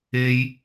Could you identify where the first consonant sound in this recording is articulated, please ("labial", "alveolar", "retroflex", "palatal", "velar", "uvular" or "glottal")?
palatal